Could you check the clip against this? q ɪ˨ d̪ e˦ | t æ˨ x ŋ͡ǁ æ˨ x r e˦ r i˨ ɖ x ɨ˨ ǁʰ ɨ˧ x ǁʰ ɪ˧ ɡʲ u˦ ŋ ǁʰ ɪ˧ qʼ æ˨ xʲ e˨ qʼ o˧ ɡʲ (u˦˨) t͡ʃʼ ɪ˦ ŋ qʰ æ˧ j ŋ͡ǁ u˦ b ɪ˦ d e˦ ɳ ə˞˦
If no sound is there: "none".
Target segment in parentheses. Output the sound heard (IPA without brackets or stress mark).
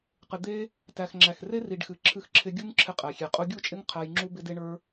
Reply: u˦˨